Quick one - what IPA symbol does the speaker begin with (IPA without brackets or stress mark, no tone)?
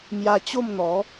m